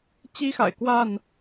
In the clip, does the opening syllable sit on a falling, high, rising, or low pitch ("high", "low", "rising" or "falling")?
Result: high